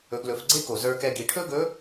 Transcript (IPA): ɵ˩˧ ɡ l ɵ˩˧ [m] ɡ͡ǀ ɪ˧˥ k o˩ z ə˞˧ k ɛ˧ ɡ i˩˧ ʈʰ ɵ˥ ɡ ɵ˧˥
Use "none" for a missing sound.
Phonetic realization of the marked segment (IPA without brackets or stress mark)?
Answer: f